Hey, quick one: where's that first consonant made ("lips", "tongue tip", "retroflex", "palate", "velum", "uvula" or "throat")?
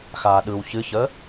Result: velum